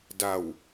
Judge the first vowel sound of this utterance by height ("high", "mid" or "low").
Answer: low